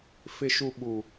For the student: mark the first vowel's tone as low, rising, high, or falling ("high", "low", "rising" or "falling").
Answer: low